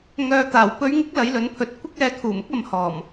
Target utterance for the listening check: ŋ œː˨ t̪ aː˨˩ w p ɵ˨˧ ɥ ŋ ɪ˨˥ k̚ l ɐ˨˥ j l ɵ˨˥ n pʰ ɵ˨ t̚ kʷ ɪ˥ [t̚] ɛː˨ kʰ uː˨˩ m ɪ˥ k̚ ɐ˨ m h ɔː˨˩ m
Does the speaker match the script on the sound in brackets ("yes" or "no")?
no